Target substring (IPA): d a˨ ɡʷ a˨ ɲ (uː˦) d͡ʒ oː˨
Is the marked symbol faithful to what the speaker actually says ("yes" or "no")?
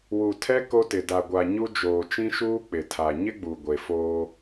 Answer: no